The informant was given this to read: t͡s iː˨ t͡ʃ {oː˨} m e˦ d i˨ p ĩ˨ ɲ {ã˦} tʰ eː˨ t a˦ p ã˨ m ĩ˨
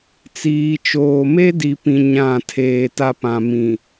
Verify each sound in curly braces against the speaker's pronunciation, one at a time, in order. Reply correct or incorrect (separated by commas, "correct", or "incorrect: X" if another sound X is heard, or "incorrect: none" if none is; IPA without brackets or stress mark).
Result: correct, incorrect: ã˦˨